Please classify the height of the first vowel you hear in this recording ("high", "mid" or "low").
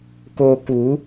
mid